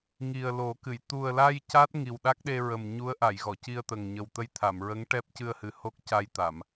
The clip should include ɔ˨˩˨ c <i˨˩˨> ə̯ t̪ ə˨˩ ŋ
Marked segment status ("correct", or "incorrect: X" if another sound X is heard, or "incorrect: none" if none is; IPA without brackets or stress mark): incorrect: i˧